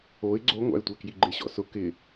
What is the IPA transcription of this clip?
o ɪ̯ ɡ͡ǀ o ŋʷ a̰ ɪ̯ tʷ ɛ k j i ɡ͡ǃ ɪ ɕ ɔ̰ s ʊ k ɪ

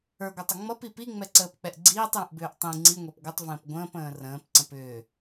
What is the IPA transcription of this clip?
ə˞ ɡʷ ə˞ tˤ ə ŋ͡m ʌ p i p i ŋ͡m ɛ ǀ əː p k͡p ɛ ʔ ɡ͡ǀ iː tˤ j ə̃ ʔ b ʏː ʔ tˤ ĩ ŋ͡ǀ i ŋʷ ɛ p ɡʷ ə tˤ v ə̃ː p ɡʷ ə̃ː p ə̃ː r ə̃ː p ǀ ə̃ p ʏː

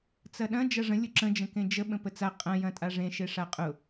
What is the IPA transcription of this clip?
t͡s ɐ ɗ ɐ̃ d͡ʒ ɐ ʐ ə̃ lʲ ʊ ǁ ə̃ d͡ʒ ə̃ k ẽ d͡ʒ ə ɓ ə̃ p ə t͡s a qʼ ɐ̃ j ɐ̃ tʼ a ʐ ẽ ʃ e ʂ a qʼ ʊ

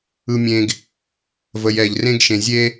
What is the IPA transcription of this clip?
ɯ˧ mʲ ẽ˧ ɡ | v ə˩ j ɛ˩ ʎ r ẽ˧ ɡ ʃ ẽ˩ zʲ e˧

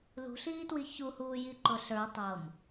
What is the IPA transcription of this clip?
l ṳ ɬ iː t w i ç u h uː j i ǃ ʊ ɬ ə˞ tˤ ɤ m

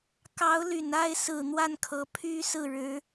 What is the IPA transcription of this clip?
k ɑ˧˥ ʊ̯ l y˨˩ n a˥˩ ɪ̯ s ɹ̩˨˩ n̪ w a˥˩ n kʰ ɤ˧˥ pʰ y˥ s ɹ̩˥˩ ɻ ɻ̩˧˥

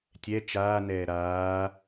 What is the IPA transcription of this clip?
tʲ ɛ t͡ʃ aː n ɛː ɾ aː

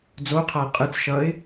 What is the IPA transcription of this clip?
d͡z o qʰ a ɪ̯ qʼ ɯ t͡s ʃ ʌ ɪ̯

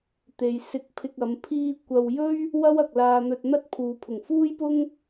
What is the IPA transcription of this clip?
t̪ e˨ j s ɪ˧ k̚ pʰ ɪ˧ k̚ ɐ˨˧ m pʰ iː˧ kʷ ɐ˨ w j ɵ˥ ɥ | w ɐ˥ w ɐ˨ k̚ l aː˧ n̪ ɵ˧ t̚ n̪ ɐ˥ t̚ pʰ uː˨ pʰ ʊ˨˩ ŋ f uː˥ j p ʊ˥ ŋ

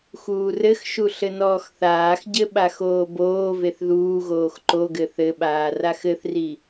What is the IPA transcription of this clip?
x uː r ɘ x ʃ u ɬ ɘ n ɔː x θ aː x ɟ ɘ ɓ a x oː b oː v e θ ð uː ɣ oː x ǃ o ɡ ɘ θ ɘ ɓ aː r a x ɘ θ r i

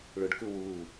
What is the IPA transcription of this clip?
ɭ ʊ ɖ k u w u

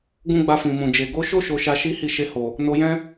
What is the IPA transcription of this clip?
ɡ ũ˦ ɡ͡b a˧ f ĩ˨ m ũ˨ d͡ʒ e˨ ɡ o˨˦ ʃ o˦ ʃ o˧ ʃ a˧ ʃ i˦ h i˦˨ ʃ e˧ h o˨ | n o˧ j ɛ̃˦

